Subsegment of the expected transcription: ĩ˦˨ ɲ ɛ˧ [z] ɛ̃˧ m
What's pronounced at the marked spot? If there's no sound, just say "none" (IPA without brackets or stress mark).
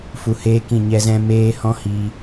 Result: z